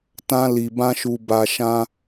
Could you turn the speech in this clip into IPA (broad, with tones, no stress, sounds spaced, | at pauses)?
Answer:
t ã˧ l i˨ b ã˧ ʃ u˨ b a˨ ʃ ã˧